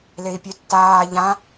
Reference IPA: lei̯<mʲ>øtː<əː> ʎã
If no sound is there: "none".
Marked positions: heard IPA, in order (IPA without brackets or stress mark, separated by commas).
pʲ, aː